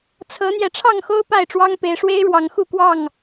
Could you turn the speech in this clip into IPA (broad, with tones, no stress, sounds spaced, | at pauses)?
t͡sʰ ɤ˨˦ n̪ j ɛ˨˦ ʈ͡ʂʰ ɑ˥˨ ŋ x o˦ ʊ̯ p a˥˨ ɪ̯ ʈ͡ʂ w ɑ˦ ŋ p e˨˦ ɪ̯ ʂ w e˦ ɪ̯ ɻ w ɑ˨˦ ŋ x u˥˨ k w ɑ˥˨ ŋ